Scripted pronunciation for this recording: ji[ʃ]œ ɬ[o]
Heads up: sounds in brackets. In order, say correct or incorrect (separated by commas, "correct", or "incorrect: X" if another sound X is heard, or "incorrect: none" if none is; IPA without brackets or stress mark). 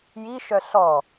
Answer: correct, incorrect: ɔ